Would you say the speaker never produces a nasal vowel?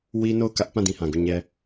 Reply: no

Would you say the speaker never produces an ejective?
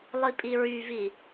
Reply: no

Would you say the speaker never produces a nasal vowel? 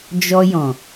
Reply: no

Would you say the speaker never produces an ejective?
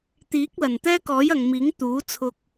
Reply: yes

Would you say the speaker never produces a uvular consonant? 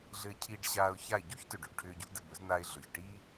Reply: yes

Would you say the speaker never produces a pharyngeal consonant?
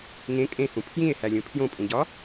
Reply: yes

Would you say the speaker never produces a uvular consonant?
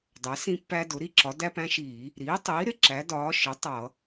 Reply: yes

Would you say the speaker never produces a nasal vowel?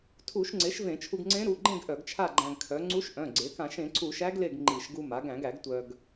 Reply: no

